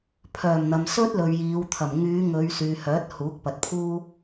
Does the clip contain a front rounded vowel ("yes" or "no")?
yes